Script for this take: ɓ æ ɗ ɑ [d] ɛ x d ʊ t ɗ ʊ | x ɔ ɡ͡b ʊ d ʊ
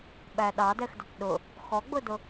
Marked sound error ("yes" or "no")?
no